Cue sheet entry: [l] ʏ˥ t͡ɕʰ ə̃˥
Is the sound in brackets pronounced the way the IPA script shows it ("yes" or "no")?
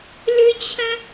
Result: yes